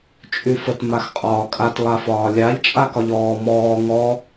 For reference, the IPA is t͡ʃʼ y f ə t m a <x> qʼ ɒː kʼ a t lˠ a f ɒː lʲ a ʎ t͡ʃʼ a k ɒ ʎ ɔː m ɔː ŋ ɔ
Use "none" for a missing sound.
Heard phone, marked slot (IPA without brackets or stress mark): x